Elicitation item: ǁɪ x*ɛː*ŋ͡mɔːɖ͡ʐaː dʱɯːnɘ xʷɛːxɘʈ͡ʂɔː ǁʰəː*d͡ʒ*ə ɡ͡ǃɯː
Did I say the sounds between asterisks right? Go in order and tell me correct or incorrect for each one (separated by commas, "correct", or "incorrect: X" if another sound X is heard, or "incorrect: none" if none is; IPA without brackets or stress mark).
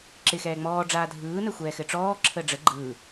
correct, incorrect: ɖ͡ʐ